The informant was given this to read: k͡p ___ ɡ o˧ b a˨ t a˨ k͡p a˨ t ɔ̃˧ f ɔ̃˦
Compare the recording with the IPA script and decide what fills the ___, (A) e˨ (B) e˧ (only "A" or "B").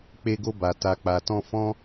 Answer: B